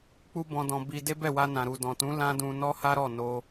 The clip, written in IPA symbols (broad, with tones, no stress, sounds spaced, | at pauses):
k͡p u˦ b ɔ̃˧ d ɔ̃˧ b i˧ d e˦ b ɛ˦˨ w a˧ n ã˨ ɾ u˨ d ɔ̃˨ t ũ˨˦ l ã˦ d ũ˧ n ɔ˦ h a˦ ɾ ɔ˦˨ n o˧